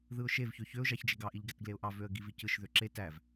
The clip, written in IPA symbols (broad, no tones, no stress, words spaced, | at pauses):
ðɯʊ̯ʃev çøçøʊ̯ ʒɑçd͡ʒeɡɑ ʔiʎɡætɡleʊ̯ʔɑ vøə̯ɡivicɯʃ ðøǁe tæv